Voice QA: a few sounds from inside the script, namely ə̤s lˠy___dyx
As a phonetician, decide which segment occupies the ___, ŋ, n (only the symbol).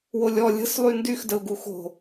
n